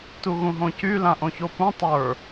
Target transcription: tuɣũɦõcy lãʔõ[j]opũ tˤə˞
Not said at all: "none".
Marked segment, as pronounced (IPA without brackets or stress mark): ç